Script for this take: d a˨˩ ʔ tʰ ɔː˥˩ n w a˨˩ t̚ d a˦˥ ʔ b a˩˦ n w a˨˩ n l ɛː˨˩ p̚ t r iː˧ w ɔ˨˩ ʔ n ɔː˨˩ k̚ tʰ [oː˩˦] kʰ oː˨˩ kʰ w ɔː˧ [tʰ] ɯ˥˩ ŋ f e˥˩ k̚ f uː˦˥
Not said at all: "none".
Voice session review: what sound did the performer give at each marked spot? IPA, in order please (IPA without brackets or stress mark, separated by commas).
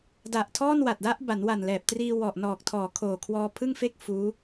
ɔː˩˦, pʰ